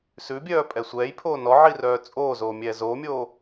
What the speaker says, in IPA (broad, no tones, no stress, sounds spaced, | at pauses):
s ʉ bʲ œː pʼ ɛ sʷ ɛː j pʰ oː n ɔ ʕ i r œː t͡sʼ oː z oː mʲ ɛː z oː mʲ oː